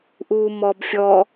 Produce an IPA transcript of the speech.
ʔ uː m ɔ b fʲ ɔ

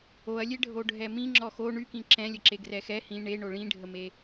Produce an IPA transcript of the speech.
o ɐ̯ lʲ e ɖʱ o ɖʱ ɛ m ĩ ŋ͡ǁ ɔ x o ɳ y k ĩ ǁ ɛ̃ lʲ ə ǁ e ɡ r ɛ x ɛ h ĩ ɳ e ɳ o ɭ ĩ ɖʱ ə m e

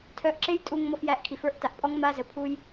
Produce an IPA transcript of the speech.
tʰ œ˧ ʔ ǁ e˦ j tʼ u˧ ŋ m ɔ˧ f j æ˧ ʔ kʰ i˨ f ə˞˦ ʔ t a˨ ʔ pʼ ɔ˦ ŋ m a˦ z ə˨ pʰ u˦ j

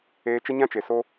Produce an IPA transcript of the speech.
eː˧ t͡ʃ ə˦ ɲ ã˦ t͡ʃ e˨ s o˦

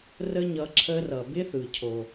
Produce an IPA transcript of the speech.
r ə˥ ɲ ʌ˧ ǁʰ ə˧ r ʌ˩ b ɪ˥ θ ɯ˩ cʰ o˩

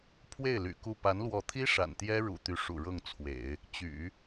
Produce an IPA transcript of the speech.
pʰ w e˥˩ ɪ̯ l y̰˨˩ k u˥˩ p a˧˥ n l w ɔ˧˥ t̪ʰ i˥ ʂ a̰˨˩ n t̪ j ɛ˥ ɻ ṵ˨˩ t̪ y˧˥ ʂ ṵ˨˩ ɻ ɤ˥˩ ŋ t͡sʰ w ḛ˨˩˦ ɪ̯ | t͡ɕ y̰˨˩˦

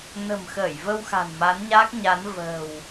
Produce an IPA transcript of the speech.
n ə̤˨˩ m x əː˧˩ j v ə˧ w x a̤˨˩ n m a˨˦ n ɲ aː˦˥ k̚ ɲ a˨˦ n v ə̤ː˨˩ w

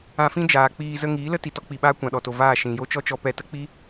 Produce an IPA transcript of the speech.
ã˧ f ĩ˦ d͡ʒ aː˨ k͡p iː˧ z ə˧ ŋ iː˨˦ l ə˦ t i˨ t ɔ˦ k͡p i˨ ɓ aː˦ kʷ ã˨ ɗ ɔ˨ t o˨ v aː˦˨ ʃ ĩ˨ j o˦ t͡ʃ ɔ˦ t͡ʃ ɔ˧ p ɛ˧ t ə˦ k͡p i˦

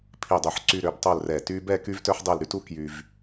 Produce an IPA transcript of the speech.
pʰ i˧˩ dˤ y˧˩ ħ ǀ y˧ ɾ ø˩˧ b tˤ o˥˧ l r ɛ˧˩ t y˥ b ɛ˥˧ k y˥ v t œ˥ ħ dˤ e˥˧ l ɾ y˥ t u˥ k j y˧ v

